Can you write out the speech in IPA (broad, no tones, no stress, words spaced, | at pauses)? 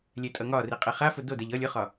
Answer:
lʲɛtʼʌŋɒri qʼeχafʊ dodɛʎ ʌlʲ ʊχɒ